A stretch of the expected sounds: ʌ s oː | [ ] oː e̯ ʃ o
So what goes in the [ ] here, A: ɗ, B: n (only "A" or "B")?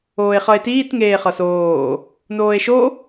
B